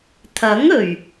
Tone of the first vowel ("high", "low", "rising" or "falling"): rising